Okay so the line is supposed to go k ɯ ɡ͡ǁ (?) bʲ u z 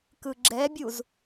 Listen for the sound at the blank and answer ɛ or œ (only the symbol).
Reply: ɛ